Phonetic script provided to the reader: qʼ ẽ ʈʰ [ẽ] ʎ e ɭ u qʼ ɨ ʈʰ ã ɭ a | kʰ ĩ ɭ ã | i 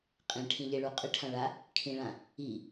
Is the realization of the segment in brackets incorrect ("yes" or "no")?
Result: yes